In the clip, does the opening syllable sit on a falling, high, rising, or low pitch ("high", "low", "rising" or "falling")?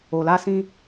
low